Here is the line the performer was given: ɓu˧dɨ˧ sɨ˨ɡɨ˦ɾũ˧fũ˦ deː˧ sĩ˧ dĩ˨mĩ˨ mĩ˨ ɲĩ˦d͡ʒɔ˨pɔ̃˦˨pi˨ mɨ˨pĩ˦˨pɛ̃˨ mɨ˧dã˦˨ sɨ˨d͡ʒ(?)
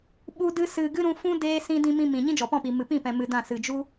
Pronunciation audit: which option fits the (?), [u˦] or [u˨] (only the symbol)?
u˦